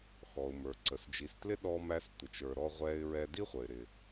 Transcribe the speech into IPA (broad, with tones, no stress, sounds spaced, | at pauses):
x ɔ˩ ʊ̯ m ə˞˩ ǀ ə˩ s d͡ʒ i˩ s t l ɪ˥ ɗ ɔ˧ m æ˧ s tʷ ɪ˩ t͡ʃ ə˞˩ ɾ ɔ˧ ʁʷ ɛ˧ ɪ̯ ɹ ɛ˧ d i˥ χʷ ə˩ ɪ̯ ɾ ɪ˩